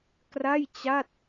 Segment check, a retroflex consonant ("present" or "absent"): absent